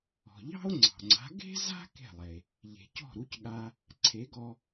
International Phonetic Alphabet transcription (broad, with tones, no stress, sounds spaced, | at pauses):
ɔ̤˩ ʎ ɑ̤˥ o̯ ŋ͡ǀ ɑ̤˩ ŋ͡ǀ a̤˩˥ ɡ e̤˥ z a̤˥ k e̤˥˩ lˠ e˩ | ʎ e̤˩ c ɔ̤˥˩ ɾ u˧ c ɠ a˧ | ǀʰ e˩˥ ɡ ɔ˧